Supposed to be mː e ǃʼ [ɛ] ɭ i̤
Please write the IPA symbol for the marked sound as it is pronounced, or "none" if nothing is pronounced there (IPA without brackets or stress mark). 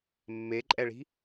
ɛ